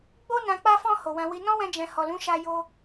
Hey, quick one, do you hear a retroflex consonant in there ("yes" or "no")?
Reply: no